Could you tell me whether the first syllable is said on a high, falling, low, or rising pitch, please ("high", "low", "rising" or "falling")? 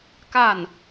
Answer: falling